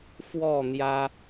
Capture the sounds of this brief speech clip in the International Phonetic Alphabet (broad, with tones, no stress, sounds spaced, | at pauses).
f w ɔ˥˨ n̪ j ä˦